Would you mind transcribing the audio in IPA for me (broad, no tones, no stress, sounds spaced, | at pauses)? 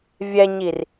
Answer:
vʲ ɛ ɲ i r